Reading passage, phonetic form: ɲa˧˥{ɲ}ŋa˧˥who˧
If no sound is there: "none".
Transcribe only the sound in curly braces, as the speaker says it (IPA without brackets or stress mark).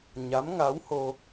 m